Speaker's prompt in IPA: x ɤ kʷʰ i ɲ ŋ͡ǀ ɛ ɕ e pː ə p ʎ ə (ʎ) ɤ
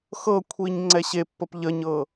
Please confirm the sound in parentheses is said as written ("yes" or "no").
no